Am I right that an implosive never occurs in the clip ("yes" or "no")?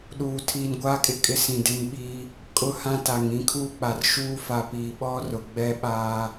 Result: no